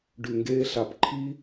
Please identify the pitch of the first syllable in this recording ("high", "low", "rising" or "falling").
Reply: low